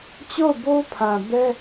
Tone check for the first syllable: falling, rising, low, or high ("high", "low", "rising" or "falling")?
falling